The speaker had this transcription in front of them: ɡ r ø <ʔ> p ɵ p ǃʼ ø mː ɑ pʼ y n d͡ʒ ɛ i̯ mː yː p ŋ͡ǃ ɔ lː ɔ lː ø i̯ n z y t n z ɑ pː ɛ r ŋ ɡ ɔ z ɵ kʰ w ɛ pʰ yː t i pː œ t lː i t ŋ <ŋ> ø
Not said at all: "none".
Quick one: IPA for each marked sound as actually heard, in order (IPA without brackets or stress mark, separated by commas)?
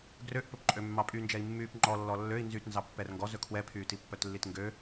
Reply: ʔ, ɡ